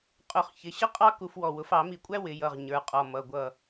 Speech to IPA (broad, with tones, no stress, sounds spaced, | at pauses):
qʼ ʊ˨˩˦ χ ç ɪ˩˧˩ ɕ ə˥ qʼ ɑ˥ k u˧ f w ɔ˧˩ w ʊ˩˥ f ɑ˨˩˦ m i˧˩ kʷʼ æ˥ w ɪ˨˩˦ j ʌ˩˧˩ ʁ ɲ ə˞˩˧˩ qʼ ɔ˩˧˩ m ʌ˩˧˩ ɡʷ ʌ˧˩